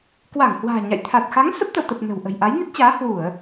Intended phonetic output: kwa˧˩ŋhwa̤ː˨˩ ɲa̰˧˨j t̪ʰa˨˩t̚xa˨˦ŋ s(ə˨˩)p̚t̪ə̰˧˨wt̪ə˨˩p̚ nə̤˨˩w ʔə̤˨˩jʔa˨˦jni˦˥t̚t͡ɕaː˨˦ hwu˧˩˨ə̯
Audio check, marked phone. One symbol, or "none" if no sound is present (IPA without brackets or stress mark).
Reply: ə˦˥